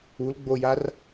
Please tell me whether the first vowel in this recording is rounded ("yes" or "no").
yes